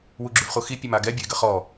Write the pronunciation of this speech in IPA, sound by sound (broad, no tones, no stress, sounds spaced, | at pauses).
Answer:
w u ɡ͡ǁ y v χ u x i pʲ ə m a ɡ ɛ bʲ ə ɪ̯ ɡ ə χ ɔ